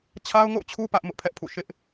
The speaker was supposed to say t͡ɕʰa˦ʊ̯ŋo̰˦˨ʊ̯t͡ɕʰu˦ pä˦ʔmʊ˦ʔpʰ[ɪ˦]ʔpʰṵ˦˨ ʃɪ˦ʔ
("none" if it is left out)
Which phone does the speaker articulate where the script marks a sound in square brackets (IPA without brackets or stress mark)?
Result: ɛ˦